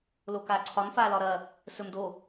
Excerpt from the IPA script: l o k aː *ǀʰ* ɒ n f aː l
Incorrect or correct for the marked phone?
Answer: correct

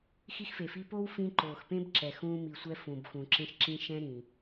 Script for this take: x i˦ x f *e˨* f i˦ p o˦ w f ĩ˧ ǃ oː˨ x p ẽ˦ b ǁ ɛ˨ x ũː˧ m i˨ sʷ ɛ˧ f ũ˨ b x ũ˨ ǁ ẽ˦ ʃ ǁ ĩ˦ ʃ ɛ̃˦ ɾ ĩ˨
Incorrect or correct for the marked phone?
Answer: correct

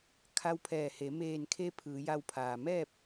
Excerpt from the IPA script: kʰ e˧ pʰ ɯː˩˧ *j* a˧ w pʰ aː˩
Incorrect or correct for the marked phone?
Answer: correct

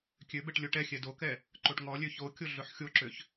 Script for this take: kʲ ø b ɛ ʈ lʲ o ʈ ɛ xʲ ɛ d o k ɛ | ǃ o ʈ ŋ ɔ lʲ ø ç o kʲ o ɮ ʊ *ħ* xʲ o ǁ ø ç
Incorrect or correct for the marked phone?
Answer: correct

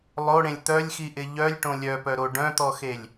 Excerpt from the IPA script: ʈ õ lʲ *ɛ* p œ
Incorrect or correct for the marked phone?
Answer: incorrect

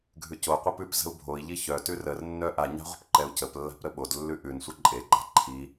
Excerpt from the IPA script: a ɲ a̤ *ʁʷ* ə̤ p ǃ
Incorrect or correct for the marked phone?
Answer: correct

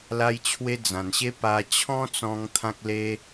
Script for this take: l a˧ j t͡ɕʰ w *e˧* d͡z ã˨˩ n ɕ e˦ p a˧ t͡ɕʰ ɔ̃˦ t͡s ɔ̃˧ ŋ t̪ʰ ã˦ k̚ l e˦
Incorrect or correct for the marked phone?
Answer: correct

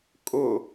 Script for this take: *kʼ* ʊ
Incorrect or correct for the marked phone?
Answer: correct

